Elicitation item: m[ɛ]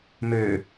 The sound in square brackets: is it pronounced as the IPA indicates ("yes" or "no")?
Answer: no